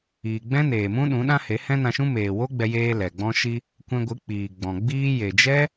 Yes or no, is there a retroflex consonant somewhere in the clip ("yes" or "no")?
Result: no